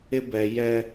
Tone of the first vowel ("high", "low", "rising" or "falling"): high